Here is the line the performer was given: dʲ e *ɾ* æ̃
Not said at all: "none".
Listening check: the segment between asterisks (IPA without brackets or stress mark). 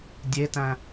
t